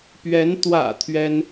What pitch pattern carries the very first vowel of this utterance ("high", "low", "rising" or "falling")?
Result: rising